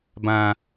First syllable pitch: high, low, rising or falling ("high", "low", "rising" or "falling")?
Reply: high